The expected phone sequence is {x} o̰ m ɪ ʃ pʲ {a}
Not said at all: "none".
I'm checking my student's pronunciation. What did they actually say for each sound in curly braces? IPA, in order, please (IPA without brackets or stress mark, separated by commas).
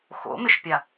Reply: x, a